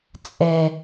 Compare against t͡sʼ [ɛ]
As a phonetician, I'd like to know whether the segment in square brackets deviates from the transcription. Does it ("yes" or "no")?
no